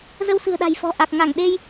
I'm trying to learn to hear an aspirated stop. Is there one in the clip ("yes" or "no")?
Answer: no